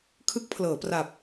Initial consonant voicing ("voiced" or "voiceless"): voiceless